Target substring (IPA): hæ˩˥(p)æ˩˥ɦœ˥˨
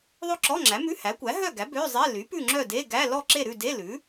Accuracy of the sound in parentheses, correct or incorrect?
incorrect